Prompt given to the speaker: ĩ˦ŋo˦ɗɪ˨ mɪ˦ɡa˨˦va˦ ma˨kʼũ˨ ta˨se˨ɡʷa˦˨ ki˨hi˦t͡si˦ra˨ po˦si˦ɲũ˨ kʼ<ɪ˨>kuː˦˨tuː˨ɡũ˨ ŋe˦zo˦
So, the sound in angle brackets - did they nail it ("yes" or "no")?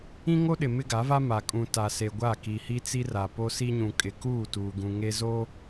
yes